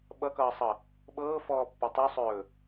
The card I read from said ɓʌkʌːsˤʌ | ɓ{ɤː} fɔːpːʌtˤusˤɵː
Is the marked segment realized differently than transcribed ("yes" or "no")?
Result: no